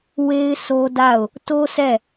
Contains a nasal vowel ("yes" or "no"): no